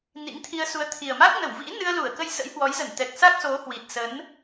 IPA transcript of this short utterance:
nḭ˧˥ŋt̪ʰi˧ə̯ su˨˦ə̯t̪ʰi˨˩ə̯ma˦˥k̚ nə˧˩wvḭ˧˥ nɨ˧ə̯lu˧˩ə̯ kə˧jsə̰˧˥jhwɔ˨˦jzə˧˩n t̪ɛ˨˩k̚sa˦˥k̚so˨˦hwi˨˩t̚ sə˨˦n

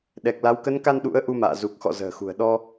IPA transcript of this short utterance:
ɗɛ˨˩k̚la˨˦w kə˨˦nka˧n ɗṵ˧˥ə̯ ʔu˧ma̰ː˧˨ zu˨˩k̚xɔ̰˧˨ zə̤ː˨˩xṳ˨˩ə̯ ɗɔ˧

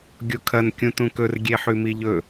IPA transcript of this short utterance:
ɡʲokʰɐn kʲũtũkɵr ɡʲeħʉmiʎɵ

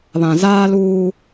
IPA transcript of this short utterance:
βã˨zaː˦luː˦

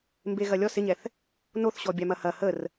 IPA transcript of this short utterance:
mbeɣɐlʲɔs ɪɲɛθ | noθɕɔ bʲamɐhɐ hər

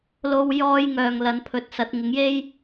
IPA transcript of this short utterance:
lo˧w jɔː˥jŋœː˨ŋ lɐ˨˧npʰɵ˧t̚sɐ˨˥t̚ ŋɪ˨˥ŋje˥j

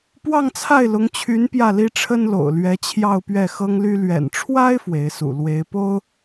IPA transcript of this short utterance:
pwɑ˥˧ŋt͡sʰa˥˩ɪ̯lʊ˧˥ŋt͡ɕʰy˧˥n pjä˥˩li˥ʈ͡ʂʰə˥n lo̰˨˩ʊ̯lɥɛ˧˥ t͡ɕʰjɑ˥˧ʊ̯pɥɛ˥˩xɤ˥ŋly˥ lɥɛ̰˨˩nʈ͡ʂʰwa˥ɪ̯ fwe˧˥ɪ̯sṵ˨˩ lwe˧˥ɪ̯po˥ʊ̯

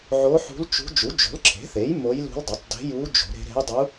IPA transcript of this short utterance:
ʕo˧˥ħṳ˧˥lt͡ʃṳ˧˥ d͡ʒu˩˥d͡ʒo̤˩˥lǁʰe̤˩˥θe˩˥j mo˧˥jlṳ˧˥ldˤɵ˩˥tˤ de̤˧˥ju˧˥ d͡ʒo̤˩˥ɾe̤˧˥ ɾe̤˧˥jdˤu˧˥

